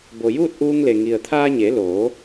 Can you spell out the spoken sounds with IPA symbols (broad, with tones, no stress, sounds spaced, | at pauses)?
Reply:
b o˩ j uː˥˨ t̚ ʔ uː˧ ŋ l e˩ ŋ i˩ ə̯ t̪ʰ aː˧ ɲ e˩˧ l oː˩˧